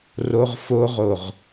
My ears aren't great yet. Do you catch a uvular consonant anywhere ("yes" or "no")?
yes